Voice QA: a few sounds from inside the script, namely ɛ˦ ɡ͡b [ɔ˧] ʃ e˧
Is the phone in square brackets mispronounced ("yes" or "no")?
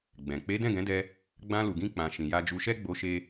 yes